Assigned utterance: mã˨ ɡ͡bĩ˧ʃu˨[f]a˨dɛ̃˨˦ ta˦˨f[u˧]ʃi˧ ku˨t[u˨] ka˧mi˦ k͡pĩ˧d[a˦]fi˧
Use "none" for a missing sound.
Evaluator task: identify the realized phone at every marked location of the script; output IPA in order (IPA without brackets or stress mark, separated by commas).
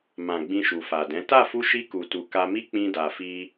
f, u˧, u˨, a˨